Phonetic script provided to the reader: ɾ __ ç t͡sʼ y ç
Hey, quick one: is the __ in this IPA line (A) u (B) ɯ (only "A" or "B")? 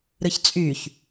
B